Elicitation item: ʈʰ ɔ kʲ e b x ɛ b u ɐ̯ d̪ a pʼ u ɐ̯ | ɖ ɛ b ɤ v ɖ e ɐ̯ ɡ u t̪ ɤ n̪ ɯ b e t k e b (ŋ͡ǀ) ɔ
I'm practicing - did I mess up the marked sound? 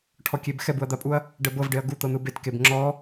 yes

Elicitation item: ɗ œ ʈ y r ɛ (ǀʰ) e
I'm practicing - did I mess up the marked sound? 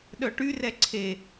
no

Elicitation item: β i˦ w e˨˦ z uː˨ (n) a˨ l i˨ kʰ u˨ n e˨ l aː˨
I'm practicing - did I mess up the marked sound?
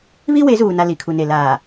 no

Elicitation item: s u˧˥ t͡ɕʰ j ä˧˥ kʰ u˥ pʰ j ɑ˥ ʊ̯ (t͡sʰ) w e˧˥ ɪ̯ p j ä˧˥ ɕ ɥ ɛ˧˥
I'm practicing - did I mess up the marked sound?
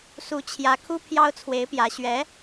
no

